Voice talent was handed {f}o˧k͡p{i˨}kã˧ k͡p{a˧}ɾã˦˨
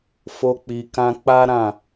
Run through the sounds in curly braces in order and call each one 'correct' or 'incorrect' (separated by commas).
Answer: correct, correct, incorrect